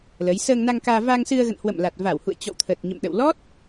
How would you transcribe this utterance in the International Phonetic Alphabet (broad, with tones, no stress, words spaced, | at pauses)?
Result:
lə˨˦j səː˧ŋna˧ŋkaː˧ va˧ŋsɨ˧ə̯ɣə̰˧˨n hwə̰˧˨mla˨˩t̚ va˧˩whṵ˧˨ə̯ t͡ɕɔ̰˧˨wt̪ʰə˨˩t̚ɲə̰˧˨mɗə̰˧˨w lɔ˦˥t̚